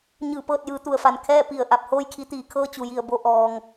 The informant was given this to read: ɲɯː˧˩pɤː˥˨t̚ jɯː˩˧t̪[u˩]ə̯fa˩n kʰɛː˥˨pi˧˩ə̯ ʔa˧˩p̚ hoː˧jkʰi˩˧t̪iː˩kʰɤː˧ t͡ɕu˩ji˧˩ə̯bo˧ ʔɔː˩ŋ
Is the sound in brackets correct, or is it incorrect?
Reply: correct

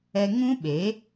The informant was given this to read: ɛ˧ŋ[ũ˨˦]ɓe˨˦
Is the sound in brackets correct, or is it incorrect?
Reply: incorrect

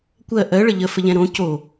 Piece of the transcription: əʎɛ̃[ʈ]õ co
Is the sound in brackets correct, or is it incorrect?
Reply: incorrect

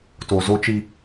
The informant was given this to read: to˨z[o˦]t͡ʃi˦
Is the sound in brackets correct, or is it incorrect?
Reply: correct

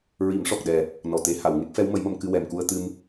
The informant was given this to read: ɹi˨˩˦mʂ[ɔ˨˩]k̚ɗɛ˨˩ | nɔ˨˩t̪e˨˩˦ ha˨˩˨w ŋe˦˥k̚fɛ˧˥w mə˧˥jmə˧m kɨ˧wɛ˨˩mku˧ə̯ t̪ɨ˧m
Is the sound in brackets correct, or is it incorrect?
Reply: correct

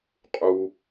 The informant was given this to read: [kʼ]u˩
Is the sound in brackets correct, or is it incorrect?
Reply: incorrect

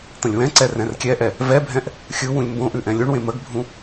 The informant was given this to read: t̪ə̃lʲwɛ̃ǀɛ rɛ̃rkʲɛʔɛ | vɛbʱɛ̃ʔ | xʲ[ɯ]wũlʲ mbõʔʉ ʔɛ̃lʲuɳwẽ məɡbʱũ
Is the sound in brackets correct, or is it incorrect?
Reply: correct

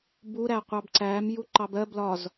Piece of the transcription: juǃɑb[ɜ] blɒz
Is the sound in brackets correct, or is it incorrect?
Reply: correct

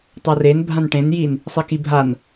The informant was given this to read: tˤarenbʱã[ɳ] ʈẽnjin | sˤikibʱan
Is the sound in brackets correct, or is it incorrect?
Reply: incorrect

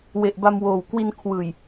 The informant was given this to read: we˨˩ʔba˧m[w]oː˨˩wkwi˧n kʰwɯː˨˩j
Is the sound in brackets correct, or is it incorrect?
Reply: correct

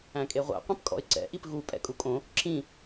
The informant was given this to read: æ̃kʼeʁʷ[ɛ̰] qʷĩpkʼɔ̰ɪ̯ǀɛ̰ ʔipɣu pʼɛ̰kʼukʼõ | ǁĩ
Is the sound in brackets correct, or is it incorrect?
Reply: correct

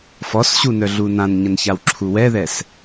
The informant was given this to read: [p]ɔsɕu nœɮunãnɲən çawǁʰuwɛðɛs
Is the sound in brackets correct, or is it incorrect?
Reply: incorrect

